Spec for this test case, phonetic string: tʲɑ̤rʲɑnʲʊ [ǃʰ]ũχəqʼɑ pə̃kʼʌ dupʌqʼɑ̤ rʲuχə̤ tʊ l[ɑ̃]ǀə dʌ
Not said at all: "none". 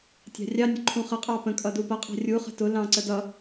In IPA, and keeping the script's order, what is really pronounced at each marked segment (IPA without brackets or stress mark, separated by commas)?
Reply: ǃʰ, ɑ̃